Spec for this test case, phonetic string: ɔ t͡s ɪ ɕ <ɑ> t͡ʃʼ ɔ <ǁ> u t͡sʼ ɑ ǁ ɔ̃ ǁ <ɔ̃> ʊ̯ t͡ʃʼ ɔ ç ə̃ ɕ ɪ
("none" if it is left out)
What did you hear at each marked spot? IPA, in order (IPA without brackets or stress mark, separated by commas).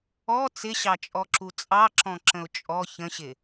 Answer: ɑ, ǁ, ə̃